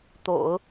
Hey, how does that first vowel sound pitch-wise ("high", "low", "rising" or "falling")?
low